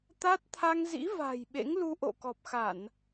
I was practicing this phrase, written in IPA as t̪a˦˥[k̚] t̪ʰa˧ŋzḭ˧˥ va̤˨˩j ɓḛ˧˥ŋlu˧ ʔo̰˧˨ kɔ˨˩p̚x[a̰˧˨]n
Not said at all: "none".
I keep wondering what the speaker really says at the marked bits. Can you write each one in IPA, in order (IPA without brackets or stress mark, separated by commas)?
t̚, a˧˩˨